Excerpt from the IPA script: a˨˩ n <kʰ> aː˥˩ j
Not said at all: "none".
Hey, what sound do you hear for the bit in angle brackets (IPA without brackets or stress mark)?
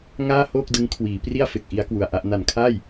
kʰ